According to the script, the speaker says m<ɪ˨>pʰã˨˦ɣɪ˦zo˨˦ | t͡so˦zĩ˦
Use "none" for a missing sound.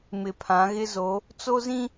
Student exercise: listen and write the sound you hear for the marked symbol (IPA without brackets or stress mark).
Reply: ɪ˨